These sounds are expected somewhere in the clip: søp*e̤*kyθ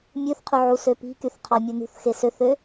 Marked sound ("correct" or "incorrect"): incorrect